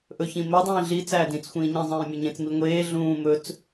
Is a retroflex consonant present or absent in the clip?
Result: absent